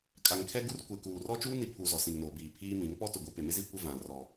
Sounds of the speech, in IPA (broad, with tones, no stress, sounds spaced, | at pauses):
kʼ a˨ ŋ kʰ ɛ˦ ɡ u˦ r kʷ e˨ k uː˨ r ɔ˦ t͡ʃ uː˦ n i˨ pʰ u˨ z ɔ˨ s ĩ˨ ŋ n oː˨ b iː˨ pʰ iː˦ m ĩ˨˦ ŋ p ɔ˦ t ʊ˨ ɡʷ i˨ p e˨ m ɪ˦ z i˦ kʷ ɪ˦ v ã˨ r ɔ˨